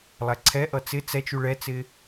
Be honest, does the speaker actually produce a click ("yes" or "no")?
yes